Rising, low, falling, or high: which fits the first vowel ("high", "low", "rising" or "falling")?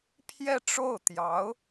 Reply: falling